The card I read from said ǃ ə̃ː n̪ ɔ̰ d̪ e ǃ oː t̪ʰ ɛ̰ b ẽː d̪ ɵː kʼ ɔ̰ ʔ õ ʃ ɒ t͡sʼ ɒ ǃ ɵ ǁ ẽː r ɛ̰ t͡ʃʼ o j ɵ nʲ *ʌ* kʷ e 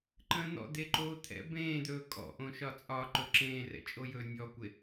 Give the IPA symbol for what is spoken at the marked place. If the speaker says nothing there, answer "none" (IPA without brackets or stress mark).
ɔ